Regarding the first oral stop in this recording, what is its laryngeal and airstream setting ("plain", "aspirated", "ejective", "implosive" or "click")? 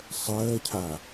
aspirated